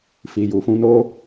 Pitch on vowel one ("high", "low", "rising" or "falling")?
low